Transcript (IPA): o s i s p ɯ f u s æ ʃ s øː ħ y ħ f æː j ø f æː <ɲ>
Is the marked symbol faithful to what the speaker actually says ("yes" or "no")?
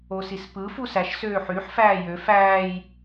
no